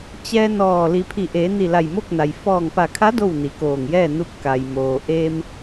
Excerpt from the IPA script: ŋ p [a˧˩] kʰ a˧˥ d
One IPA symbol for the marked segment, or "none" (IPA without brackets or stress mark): a˧˩